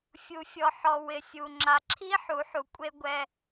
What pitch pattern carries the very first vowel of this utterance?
low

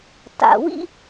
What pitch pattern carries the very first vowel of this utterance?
low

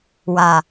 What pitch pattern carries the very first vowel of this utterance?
low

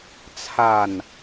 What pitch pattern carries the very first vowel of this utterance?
falling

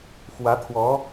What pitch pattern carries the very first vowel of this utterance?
rising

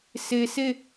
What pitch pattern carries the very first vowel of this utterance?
low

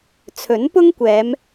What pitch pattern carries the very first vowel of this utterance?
rising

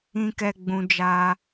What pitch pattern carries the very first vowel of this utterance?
high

